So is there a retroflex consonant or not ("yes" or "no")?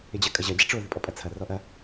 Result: yes